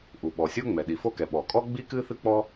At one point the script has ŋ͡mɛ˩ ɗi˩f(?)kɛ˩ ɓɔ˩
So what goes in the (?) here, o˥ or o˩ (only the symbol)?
o˥